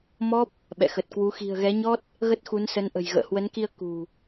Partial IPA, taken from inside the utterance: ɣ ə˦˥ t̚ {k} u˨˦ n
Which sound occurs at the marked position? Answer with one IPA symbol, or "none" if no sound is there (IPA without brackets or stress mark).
x